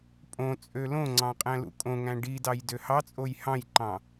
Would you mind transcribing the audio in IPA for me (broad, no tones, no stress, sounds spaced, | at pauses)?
pʼ õ t͡sʼ ø l õ ŋ͡ǀ ɑ̃ qʼ æ̃ l ṵ kʼ õ ŋ æ̃ ɖ i d ɑ j d ø h ɑ t͡sʼ o j h ɑ̃ j ǃ ɑ̃